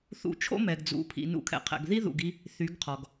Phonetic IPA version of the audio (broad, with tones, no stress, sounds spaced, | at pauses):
θ ṵ˧ t͡ʃʰ o̰˦ m ɛ˨ ɡ d͡z ṵ˨ pʰ ḭ˨ n ṵ˧ kʰ ɛ̰˨ qʰ ɛ̰˨ ɡ ð i˦ ð ṵ˨ ɡ i˧ | θ y˨˦ ɡ qʰ ɔ˨ ɡ